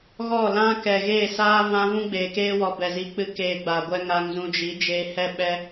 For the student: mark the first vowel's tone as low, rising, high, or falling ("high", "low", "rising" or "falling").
falling